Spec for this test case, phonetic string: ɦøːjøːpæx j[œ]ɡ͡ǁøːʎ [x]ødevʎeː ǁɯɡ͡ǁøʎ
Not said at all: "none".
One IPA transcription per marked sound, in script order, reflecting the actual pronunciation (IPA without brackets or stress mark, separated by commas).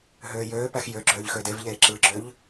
ø, x